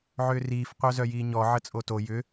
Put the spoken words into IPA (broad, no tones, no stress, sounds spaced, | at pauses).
ʕ ʏː r iː f qʷ œ z œ j iː ɲ ɔ ʕ ə t͡sʼ o t o j ʏ